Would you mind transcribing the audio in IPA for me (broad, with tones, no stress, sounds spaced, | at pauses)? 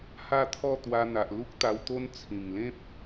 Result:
h a˥˧ t̪ʰ ɔ˥˧ t̪ w a˧ n̪ a˨ ʔ l u˦ k̚ t̪ a˧ w t̪ o˦ n t͡sʰ ĩ˨˩ ŋ l ẽ˦ p̚